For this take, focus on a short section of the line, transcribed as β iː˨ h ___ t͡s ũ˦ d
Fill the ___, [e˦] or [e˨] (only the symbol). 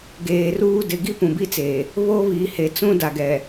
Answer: e˨